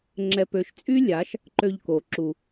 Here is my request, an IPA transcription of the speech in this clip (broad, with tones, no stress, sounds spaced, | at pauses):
ŋ͡ǁ ɛ˨ p ø˨ ʃ t͡sʼ y˦ lʲ a˨˦ ʃ | ǃ ø˧ ʎ k o˨ ǁ u˨